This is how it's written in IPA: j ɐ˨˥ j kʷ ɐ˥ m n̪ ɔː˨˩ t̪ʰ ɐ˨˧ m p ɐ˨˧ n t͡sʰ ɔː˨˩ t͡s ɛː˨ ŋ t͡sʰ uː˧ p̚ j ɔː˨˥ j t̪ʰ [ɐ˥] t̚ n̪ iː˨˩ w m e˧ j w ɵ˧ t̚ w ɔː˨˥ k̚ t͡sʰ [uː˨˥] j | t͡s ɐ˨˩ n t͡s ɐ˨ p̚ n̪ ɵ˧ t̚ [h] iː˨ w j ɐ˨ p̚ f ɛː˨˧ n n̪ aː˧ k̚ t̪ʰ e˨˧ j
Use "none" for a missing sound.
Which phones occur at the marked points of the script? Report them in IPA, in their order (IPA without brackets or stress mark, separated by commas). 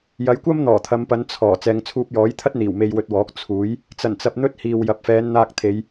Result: ɐ˥, uː˨˥, h